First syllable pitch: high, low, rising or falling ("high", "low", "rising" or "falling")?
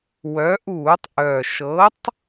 rising